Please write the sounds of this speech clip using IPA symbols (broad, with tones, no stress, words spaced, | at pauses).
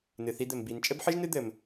nɨ˩θi˨d̪ɘ˩m bi˩n t͡ʃʼɘ˦bħɨ˦ʒnɨ˦d̪ɘ˩m